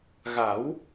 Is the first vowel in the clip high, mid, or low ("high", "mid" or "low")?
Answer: low